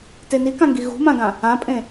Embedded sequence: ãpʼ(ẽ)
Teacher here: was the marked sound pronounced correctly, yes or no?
yes